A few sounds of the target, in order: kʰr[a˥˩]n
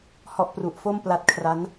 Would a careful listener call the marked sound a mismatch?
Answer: yes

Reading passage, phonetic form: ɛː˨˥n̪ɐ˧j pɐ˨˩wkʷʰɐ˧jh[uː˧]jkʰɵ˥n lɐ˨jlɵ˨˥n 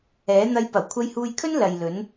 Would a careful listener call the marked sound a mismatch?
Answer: no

